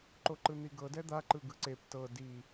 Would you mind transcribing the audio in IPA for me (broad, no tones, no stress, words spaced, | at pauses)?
ǃoǃɯn̪iɡɤ dɛd̪a ǃɯɡɯǀep tɤ di